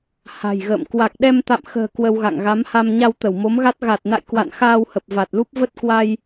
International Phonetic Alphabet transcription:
ha̤˨˩jɣə̰ː˧˨m kwa˨˩k̚ɗɛ˧mt̪a̰˧˨mxə̤ː˨˩ kwə˧wɣa̰˧˨ŋ ɣa˨˦mha˧m ɲa˧wt̪ə˧˩w mo˨˦mɣa˦˥t̚ ɣa˨˩t̚na̰˧˨j kwa̰˧˨n xaː˧whə˨˩p̚ va˨˩t̚lu˦˥p̚ və˦˥t̚kwa˧j

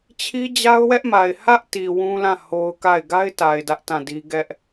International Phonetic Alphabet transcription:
t͡ɕʰi˦d͡ʑa˦ʊ̯wɛ˦ʔma˨ɪ̯ hä˦ʔti˨ wũ˦lã˦˨ ho˦ʊ̯ka˦˨ɪ̯ ɡa˦ɪ̯ta˨ɪ̯ dä˦ʔtã˦˨di˦ ɡɛ˦ʔ

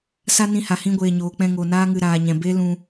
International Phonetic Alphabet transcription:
sa˦nĩ˧ha˨ hĩ˧ɡʷeː˨ ɲoː˨k͡pɛ̃˧ŋo˨ naː˧ŋɨ˨ ɾaː˨ɲɛ̃˨be˦ lũ˧

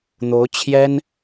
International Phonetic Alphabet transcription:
n̪o˧˥ʊ̯t͡ɕʰjɛ˥n

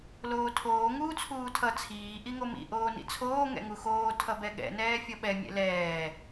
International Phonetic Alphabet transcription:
loːtʰoː ŋuːt͡sʰuːtʰʌ t͡sʰiː ʔiŋomḭ ʔoːnḭt͡sʰoː ŋɛ̰ŋuxoː tʰʌbɛɠɛ̰ nɛːfʲʌɓɛ mʲɛ̰lɛː

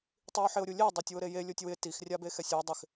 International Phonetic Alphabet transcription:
tˤio̯ħɪo̯ɾʲulʲe dˤotʲwʊɾeje lʲotʲwɪ tix rʲabexɛsʲwʊ dˤɪx

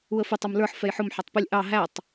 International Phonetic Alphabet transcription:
uə̯fɪ tˤʊmlə˞ħ fɛjħʊm ħɑtˤpɪlʲ ʔɑ ɦætˤ

